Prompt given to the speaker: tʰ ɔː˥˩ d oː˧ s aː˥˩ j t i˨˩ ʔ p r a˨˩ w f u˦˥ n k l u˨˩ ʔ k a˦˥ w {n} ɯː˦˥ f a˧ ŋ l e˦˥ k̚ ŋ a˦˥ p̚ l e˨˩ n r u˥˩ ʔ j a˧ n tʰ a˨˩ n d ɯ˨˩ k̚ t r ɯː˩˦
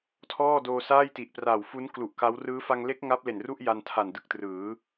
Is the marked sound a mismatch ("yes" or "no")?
yes